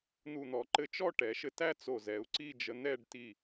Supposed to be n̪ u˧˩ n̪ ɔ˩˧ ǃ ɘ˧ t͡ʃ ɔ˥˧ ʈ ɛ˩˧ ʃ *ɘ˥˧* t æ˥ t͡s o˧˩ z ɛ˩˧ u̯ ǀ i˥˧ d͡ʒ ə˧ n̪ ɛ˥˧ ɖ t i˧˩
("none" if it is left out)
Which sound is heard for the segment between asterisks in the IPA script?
ɘ˧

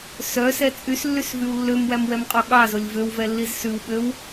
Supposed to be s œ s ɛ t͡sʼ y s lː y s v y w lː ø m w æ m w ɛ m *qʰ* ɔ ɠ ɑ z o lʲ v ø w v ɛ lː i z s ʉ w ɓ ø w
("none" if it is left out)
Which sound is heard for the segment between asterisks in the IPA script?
qʼ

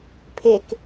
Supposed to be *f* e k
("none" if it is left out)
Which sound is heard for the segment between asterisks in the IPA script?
pʰ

